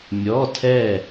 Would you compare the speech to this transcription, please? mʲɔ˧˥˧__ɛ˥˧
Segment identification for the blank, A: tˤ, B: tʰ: B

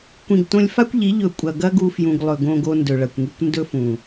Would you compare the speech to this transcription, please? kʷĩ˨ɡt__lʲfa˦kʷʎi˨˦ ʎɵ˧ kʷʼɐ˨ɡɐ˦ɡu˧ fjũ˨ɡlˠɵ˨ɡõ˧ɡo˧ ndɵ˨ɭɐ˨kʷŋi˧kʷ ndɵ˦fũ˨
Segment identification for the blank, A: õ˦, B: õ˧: B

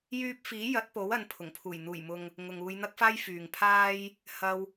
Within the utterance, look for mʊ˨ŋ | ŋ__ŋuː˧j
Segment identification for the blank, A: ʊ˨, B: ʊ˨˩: A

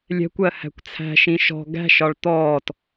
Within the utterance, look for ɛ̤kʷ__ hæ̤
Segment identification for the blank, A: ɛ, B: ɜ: B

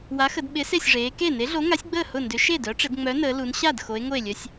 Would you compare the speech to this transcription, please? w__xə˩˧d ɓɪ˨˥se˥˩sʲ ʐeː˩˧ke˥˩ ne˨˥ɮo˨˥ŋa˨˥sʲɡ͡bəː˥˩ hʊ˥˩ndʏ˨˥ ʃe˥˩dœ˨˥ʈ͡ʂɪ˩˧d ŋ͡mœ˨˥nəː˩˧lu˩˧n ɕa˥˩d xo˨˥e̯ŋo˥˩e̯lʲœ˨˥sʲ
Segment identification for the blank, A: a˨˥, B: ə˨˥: A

